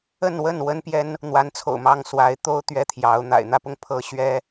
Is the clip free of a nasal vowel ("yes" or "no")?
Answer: yes